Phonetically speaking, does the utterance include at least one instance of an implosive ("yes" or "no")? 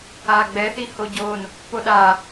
yes